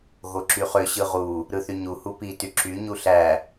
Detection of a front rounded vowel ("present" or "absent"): present